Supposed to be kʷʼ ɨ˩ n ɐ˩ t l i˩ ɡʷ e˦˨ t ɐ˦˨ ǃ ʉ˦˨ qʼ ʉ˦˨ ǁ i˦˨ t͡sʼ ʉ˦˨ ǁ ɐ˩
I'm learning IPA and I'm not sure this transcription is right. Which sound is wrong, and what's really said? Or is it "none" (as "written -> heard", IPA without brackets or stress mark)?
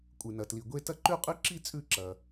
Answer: none